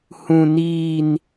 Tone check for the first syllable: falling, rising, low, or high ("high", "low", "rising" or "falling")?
high